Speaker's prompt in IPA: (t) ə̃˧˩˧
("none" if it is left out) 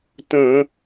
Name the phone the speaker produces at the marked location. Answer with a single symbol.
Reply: t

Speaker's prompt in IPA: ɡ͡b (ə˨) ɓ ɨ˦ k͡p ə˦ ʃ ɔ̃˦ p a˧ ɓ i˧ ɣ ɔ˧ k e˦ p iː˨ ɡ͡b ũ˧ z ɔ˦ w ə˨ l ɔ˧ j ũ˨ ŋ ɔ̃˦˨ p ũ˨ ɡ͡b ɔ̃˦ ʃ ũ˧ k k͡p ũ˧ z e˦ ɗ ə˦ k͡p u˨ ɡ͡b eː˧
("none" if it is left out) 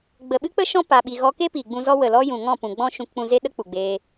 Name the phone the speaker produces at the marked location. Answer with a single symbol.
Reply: ə˨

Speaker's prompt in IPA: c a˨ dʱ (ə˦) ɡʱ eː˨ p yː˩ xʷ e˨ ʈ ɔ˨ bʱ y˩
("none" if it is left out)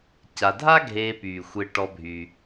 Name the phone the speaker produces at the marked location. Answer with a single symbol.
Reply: a˦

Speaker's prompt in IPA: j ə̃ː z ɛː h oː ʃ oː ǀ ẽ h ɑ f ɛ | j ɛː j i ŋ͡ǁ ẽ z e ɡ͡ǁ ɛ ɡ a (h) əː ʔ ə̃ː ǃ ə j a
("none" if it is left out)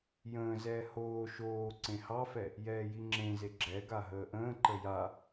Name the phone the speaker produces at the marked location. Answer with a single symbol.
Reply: ɦ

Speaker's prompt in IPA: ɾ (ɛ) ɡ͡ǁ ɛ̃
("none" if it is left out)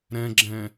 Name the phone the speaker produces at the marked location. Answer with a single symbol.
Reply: ɛ̃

